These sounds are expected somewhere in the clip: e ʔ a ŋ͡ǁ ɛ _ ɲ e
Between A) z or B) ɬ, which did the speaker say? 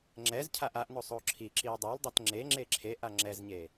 A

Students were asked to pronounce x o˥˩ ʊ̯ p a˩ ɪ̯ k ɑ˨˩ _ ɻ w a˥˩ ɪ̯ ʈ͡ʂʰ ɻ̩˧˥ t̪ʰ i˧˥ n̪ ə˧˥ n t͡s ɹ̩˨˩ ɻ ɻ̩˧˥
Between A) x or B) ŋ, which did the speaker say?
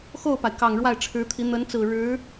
B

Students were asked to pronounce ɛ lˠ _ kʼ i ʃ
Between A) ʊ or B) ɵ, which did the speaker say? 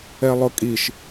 A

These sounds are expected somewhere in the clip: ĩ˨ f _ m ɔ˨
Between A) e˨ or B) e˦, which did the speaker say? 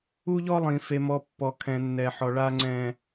A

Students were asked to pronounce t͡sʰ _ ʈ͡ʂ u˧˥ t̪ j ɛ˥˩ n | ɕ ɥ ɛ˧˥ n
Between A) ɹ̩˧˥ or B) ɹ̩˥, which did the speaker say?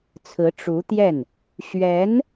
A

